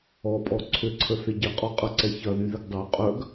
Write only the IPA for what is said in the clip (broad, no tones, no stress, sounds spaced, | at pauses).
ɔ pʼ ɔ ǀʰ ʏ ǀʰ ə θ ɪ ɟ ɪ qʼ ɔ qʼ ɐ ǀ ɛ ç ɐ ð y ð ɪ ɡ dˤ ø qʼ œ ɡ